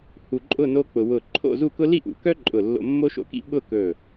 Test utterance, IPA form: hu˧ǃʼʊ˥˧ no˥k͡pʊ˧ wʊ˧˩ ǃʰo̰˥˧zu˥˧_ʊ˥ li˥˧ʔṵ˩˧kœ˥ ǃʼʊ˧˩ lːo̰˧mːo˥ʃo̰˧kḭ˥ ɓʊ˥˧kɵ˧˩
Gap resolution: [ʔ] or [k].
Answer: k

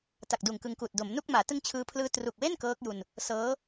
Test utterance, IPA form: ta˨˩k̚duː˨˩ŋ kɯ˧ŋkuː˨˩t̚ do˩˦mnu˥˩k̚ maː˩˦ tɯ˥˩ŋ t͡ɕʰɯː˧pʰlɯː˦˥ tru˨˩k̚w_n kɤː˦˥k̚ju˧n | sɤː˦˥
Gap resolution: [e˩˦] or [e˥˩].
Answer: e˥˩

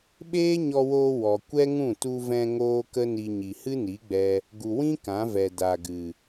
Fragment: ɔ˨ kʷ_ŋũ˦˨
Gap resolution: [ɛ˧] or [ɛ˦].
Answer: ɛ˦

